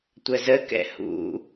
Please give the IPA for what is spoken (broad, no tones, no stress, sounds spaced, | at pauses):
tʷ ə z ə k ɛ̰ h ṵ